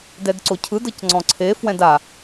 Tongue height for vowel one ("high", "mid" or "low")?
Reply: mid